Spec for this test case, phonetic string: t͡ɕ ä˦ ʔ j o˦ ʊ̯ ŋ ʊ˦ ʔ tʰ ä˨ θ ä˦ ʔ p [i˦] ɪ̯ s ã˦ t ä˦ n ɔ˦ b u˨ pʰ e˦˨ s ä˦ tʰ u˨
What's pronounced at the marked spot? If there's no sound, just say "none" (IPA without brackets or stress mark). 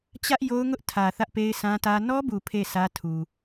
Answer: e˦